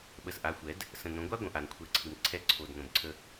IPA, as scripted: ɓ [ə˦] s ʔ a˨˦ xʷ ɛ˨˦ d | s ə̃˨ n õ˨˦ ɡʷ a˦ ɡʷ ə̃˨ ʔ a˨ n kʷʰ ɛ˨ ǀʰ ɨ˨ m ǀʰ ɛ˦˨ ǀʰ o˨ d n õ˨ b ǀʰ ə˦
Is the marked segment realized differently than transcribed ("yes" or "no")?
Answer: yes